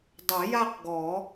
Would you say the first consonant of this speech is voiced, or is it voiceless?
voiced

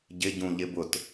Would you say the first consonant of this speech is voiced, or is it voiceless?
voiced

